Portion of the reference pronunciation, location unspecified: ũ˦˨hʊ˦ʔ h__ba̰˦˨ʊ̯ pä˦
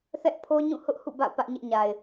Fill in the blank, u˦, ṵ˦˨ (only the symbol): ṵ˦˨